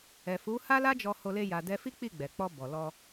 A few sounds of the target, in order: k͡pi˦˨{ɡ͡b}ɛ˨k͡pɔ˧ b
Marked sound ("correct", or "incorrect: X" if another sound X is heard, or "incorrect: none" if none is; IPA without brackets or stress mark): correct